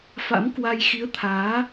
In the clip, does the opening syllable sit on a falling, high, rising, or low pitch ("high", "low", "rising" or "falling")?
rising